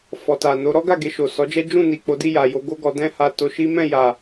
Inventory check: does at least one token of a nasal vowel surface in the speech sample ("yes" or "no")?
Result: yes